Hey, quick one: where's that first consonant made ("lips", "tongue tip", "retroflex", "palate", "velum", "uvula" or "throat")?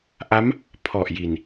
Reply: throat